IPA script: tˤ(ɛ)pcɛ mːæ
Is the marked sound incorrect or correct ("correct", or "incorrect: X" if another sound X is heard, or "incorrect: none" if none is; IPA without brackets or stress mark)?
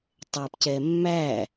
correct